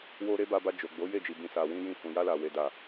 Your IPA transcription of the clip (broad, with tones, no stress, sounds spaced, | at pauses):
w o˧ ɾ e˦ b a˧ b a˧ d͡ʒ o˨ ɡ͡b o˨˦ j e˦˨ d͡ʒ i˨ b ĩ˨ s a˨ w ĩ˧ j ĩ˧ h ũ˨ j a˧ l a˨ w e˨ d a˨